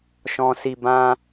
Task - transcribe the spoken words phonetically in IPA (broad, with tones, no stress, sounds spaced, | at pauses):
ʃ ɔ̃˨ s i˨ b ã˧